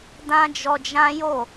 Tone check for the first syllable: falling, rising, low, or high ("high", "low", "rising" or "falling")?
high